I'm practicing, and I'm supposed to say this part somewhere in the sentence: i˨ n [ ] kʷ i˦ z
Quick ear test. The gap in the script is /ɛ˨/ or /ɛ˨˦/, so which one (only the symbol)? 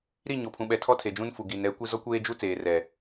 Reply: ɛ˨˦